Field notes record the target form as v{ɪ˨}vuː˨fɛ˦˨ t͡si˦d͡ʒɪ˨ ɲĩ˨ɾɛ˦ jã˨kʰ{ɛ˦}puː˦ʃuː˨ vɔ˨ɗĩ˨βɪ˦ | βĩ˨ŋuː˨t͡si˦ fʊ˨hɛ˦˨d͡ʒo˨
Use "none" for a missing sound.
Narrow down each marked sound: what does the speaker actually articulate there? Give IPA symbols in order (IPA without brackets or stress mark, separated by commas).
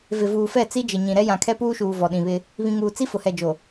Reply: ɪ˨, ɛ˦